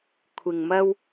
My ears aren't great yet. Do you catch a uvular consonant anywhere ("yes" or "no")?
no